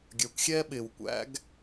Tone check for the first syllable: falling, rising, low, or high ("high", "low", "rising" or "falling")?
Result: rising